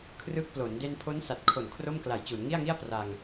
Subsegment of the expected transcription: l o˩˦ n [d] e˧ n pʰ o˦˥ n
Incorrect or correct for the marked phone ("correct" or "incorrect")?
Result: correct